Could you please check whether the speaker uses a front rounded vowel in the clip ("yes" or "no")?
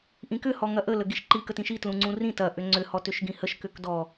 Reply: yes